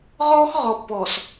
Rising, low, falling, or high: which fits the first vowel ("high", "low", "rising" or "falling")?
high